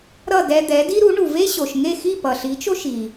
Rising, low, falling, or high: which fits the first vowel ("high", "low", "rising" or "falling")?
falling